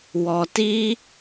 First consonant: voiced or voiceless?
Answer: voiced